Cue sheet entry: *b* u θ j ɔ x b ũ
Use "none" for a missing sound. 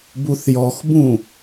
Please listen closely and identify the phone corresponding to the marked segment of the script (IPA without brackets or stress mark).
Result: b